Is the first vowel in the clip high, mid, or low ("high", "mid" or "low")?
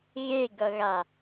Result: mid